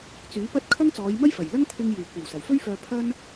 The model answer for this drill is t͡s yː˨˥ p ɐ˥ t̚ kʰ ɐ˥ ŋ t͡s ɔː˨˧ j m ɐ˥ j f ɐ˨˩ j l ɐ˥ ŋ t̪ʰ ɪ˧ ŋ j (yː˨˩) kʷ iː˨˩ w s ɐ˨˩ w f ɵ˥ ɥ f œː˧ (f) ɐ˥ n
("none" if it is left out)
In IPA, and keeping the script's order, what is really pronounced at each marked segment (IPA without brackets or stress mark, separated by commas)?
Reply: yː˨˩, pʰ